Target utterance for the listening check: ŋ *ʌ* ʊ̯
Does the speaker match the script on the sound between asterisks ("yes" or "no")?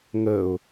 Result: no